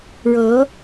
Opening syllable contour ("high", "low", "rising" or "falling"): rising